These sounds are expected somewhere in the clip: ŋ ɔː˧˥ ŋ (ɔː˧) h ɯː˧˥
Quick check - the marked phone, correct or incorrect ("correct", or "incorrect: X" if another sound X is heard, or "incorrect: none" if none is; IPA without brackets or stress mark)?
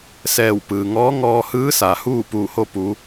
correct